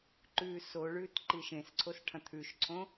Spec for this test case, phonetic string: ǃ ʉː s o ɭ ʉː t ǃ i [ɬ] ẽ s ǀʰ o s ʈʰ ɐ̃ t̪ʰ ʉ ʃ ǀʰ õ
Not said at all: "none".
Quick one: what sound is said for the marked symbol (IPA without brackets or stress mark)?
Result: ʃ